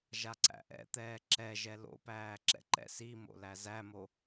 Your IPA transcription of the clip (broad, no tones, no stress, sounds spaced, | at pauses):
ʒ a ǀ æ̰ ʔ ɛ̰ t̪ ɛː ǁ ɛ ʒ ɛ l o̰ p æː ǁ ɛ̰ ǃ ɛ̰ s i m o̰ l æ z æ m o